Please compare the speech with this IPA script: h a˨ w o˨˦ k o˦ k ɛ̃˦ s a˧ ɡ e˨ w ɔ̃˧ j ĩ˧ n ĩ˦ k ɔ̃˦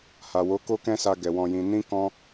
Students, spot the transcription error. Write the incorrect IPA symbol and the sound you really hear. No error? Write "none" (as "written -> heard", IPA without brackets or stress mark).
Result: e˨ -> ɛ˨